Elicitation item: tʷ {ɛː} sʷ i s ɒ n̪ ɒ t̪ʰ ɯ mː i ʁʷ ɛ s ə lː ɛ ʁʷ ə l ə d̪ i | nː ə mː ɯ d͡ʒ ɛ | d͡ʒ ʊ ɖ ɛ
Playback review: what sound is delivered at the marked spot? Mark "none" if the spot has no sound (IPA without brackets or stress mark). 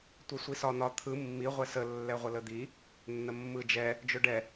ɛ